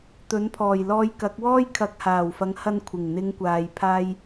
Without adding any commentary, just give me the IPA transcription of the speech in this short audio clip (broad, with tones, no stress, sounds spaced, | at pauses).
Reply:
t̪ ɵ˨˥ n pʰ ɔː˨˩ j l ɔː˧ j k ɐ˨˥ k̚ w ɔː˥ j kʰ ɐ˨˥ k̚ h aː˨˩ w f ɐ˨˥ ŋ h ɐ˧ n kʷʰ ɪ˨˩ ŋ n̪ ɪ˨˧ ŋ kʷ aː˨ j pʰ aː˧ j